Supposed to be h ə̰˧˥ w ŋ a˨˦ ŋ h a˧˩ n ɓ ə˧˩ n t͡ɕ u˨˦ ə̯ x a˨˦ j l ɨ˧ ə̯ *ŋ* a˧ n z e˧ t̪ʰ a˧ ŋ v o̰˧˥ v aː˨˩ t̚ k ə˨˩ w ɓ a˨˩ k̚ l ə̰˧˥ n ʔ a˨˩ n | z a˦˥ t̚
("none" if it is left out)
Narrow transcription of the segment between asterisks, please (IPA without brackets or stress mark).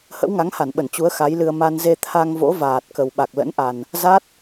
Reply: m